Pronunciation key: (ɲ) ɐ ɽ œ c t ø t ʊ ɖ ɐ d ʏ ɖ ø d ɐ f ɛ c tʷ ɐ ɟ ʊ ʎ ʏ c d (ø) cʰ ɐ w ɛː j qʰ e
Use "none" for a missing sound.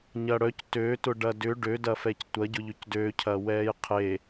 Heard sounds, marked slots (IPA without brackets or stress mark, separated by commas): ɲ, ø